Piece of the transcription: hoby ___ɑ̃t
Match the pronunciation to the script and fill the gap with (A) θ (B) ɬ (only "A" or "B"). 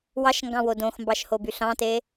B